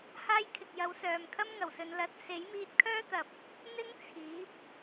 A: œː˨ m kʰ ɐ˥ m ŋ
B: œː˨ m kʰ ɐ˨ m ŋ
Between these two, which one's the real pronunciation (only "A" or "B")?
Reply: A